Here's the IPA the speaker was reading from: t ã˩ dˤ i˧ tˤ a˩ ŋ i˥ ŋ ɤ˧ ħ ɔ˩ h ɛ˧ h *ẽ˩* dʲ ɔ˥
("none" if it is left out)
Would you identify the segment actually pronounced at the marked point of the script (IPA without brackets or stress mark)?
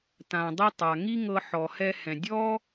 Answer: ɛ̃˩